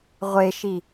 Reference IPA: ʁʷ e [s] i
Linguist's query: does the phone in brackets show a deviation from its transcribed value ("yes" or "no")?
yes